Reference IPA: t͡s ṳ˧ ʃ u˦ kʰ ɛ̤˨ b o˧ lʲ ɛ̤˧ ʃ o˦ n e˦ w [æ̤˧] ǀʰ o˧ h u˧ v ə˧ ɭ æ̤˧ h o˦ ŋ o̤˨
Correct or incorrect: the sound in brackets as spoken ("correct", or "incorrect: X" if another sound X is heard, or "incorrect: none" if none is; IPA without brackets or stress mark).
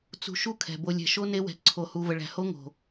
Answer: incorrect: ɛ̤˧